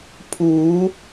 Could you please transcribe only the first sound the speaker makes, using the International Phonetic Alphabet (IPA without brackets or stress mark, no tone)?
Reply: pʰ